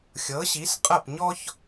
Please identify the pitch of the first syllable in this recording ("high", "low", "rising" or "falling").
rising